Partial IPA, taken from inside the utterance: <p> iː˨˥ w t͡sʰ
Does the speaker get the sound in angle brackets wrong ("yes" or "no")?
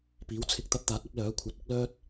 no